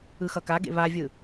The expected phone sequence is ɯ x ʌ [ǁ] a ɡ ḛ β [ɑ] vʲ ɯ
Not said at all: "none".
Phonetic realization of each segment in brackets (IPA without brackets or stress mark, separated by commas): k, a